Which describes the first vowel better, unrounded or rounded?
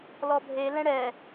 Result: rounded